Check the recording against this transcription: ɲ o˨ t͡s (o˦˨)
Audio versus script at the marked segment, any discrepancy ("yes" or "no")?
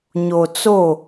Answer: no